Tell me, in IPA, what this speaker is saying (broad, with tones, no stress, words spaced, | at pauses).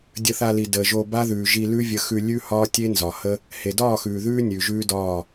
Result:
dʲə˧θa˧li˨ dəː˨ʒo˧ ba˦ðʉː˨ʒi˧ lʉ˦vʲə˧xʉ˧ lʲʉ˦hɒː˦tʲe˦ nzɒ˨hə˦ | he˨dɒː˦˨xʉː˨ ðʉː˦ nʲʉː˨ʒʉː˦ dɒː˦˨